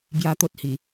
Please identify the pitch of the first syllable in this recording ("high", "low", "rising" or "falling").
high